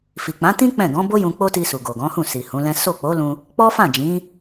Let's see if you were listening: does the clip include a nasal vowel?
yes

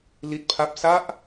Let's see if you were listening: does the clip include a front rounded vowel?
no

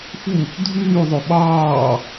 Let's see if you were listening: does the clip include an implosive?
yes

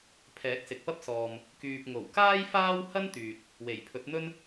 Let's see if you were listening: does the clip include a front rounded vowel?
yes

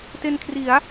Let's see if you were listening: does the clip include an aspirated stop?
yes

